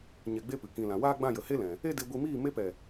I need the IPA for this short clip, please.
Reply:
ɲ ɛ˨ ɡ͡b e˦ p ɨ˨ k ĩ˨ l ã˨ w aː˦ ɡ͡b ã˦˨ j ə˨ h e˦ l ɛ̃˨ | e˦ d e˧ ɡʷ i˧ m iː˦˨ m e˧ p ɛ˨

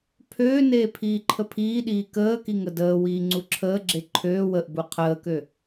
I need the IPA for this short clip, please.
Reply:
pʰ øː n eː pʰ iː ǃʰ ə pʰ iː ɗ iː k əː k i ŋ ə d əː w iː ŋ͡ǀ u ǁʰ əː ɡ͡ǁ e ǃʰ øː w ə ʔ b u qʰ əː k ø

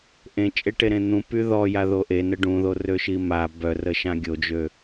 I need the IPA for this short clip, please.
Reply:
ʔ ẽ t͡ʃʼ e ʈ e ɾ ẽ n̪ ũ p y ð ɔ j a ð o ʔ e n ə ɖ ũ ð o r ø ʃ i m a b œ r ə ʃ ã ɡʲ o d͡ʒ ø

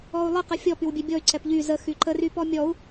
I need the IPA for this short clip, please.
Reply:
ɔ u̯ lˠ ə q ə fʲ ɔ p y w bʲ ɛ bʲ ɔ y̯ ǀ ɛ p ʎ y z ə x y ǃ ə r y p ɔ mʲ ɔ u̯

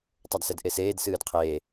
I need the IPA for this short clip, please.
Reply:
tˤ ɛ d s ɛ d ʔ e s eː d s ɨː d qʰ eː

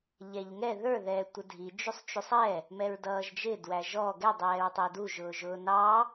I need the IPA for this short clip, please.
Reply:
ʎ ɛ ʎ ŋ ɛ ð ə˞ ð ɛː tʷ ə dʱ i d͡ʒ u sˤ t͡ʃ u sˤ ɛ | m ɛ ɹ d ʌː ʒ d͡ʒ ɪ d w æ ʒ ɔ ɡ ɛ dˤ ɛː ɹ tˤ ɛ d u ʒ ʊː ʒ ʊː n ɑ

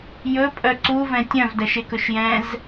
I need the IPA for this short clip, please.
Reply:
j ɵ pʼ œ ǀ u v ɛ̃ tʲ œ̃ v d æ ʃ e k ɵ ʃ j ɛ̃ z

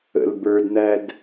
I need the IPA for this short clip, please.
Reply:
ə̰ l b ə˞ d n̪ æ d

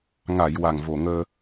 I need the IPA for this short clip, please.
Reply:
ŋ a˨˩˨ j w a˨˩ ŋ v o˨˩ ŋ əː˧

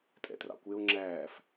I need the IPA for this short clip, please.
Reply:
tʼ ɛ̰ t r ɑ̰ kʷ e o̯ ŋ͡ǁ æː f

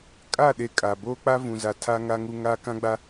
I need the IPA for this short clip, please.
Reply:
kʼ a˦˨ ɗ e˨ kʼ a˨ b oː˦ k͡p a˦ v ũ˨ z a˨ tʰ a˦ ŋ a˦ ŋ u˦ ŋ aː˦ k ã˦ ɡ͡b a˦

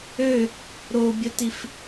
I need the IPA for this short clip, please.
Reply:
ø | ɾ o bʲ ə t i f

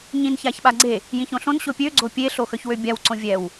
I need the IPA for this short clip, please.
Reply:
ɲ ĩ n ç a ç ɓ a ɡ͡ǀ e | j ĩ ç õ ɬ õ n ɕ o pʲ ø ɡ͡ǀ o pʲ e ɬ o x œ ç w ø bʲ a w ǀ õ vʲ ɛ w

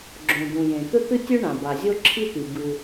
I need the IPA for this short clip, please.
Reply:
ɡ͡ǁ õ˩ d̪ ũ˩ j ẽ˩ t̪ ɵ˥ t̪ ɨ˥ tʲ ɵ˥ ɳ ã˩ b a˩ zʲ o˥ ǁʰ i˥ t̪ i˩ b ɨ˩

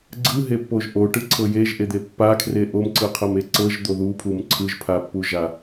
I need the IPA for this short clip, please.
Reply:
ɡ͡ǀ ɯ ɦ e pː o ʒ ʔ o ʈ ɯ ǀʰ ɤ j e ʒ ʔ e d̪ e pː a kʰ r e ʔ o m ǀ ɯ qʰ ɤ m e ǀ ɤ ʒ d̪ o ð u pʰ u m ǀʰ ɯ ʒ pʰ a pː u ʒ a

